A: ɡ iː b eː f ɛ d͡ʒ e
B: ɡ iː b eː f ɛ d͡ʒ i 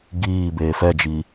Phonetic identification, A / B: B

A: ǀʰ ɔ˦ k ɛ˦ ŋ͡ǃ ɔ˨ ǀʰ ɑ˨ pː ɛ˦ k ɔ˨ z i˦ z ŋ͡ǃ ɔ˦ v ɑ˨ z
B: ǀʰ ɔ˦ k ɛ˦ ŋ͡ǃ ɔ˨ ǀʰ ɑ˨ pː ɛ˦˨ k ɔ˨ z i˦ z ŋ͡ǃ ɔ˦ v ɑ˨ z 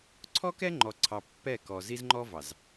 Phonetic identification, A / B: B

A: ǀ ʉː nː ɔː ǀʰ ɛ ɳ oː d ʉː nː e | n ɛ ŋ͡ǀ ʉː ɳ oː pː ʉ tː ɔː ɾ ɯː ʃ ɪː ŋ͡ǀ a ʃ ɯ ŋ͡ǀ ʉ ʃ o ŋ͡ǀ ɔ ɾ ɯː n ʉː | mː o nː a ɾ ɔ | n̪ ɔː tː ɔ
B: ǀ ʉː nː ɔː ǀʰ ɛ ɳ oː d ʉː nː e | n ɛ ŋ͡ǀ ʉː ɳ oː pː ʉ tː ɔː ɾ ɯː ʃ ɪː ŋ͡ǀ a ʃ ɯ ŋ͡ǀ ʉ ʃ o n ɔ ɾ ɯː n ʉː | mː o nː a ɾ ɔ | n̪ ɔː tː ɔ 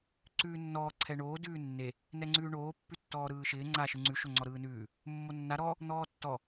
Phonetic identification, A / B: A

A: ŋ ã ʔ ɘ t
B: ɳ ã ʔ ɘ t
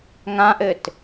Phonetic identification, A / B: A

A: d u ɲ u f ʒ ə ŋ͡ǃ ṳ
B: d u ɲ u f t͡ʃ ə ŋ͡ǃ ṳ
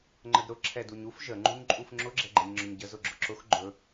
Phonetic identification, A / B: A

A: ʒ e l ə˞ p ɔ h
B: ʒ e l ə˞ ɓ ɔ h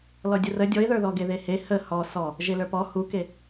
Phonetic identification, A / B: A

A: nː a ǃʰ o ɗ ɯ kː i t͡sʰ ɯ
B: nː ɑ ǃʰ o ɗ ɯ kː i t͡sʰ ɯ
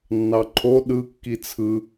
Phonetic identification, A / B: B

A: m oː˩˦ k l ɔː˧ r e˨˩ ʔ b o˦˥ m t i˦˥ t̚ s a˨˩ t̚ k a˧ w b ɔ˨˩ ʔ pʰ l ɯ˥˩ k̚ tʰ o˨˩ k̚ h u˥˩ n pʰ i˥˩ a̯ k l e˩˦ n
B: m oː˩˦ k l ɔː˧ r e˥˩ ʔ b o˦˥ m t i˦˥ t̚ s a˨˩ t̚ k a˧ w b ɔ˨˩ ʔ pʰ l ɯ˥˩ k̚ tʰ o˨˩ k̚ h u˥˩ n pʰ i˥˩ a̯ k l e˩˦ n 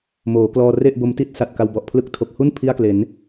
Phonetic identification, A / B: B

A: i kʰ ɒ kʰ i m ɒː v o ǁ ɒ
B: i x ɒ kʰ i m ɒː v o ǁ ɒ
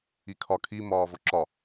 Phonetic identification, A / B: A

